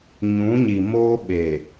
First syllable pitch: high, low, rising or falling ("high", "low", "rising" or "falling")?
rising